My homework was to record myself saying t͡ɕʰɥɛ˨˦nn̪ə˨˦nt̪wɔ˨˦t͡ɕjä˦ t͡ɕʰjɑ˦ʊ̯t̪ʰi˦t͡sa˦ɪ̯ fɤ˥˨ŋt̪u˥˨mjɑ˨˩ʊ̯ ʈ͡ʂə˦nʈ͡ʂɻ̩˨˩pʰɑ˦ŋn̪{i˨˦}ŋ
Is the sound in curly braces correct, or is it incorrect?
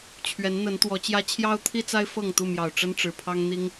incorrect